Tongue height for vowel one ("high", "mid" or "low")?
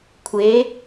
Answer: mid